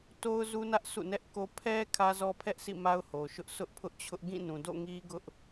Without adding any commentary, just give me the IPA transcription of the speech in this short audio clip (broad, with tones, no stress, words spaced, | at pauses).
to˦ʊ̯zu˦nä˦ʔ sṵ˦˨nɛ˦ʔko˦ pʰɛ˦ kʰä˦zɔ˦pʰɛ˦ʔsḭ˦˨ ma˦ʊ̯ho˨ʃʊ˦ʔ sʊ˦ʔpʰʊ˦ʔt͡ɕʰʊ˦ʔ ɡĩ˦˨nũ˨do̰˦˨ ŋi˦ɡʊ˦ʔ